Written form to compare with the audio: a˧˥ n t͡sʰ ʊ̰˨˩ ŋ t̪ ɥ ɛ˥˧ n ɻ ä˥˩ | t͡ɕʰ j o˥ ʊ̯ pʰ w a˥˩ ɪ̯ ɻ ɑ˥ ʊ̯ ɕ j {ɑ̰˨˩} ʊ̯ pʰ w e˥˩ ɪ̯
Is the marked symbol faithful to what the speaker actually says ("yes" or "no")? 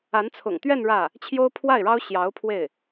no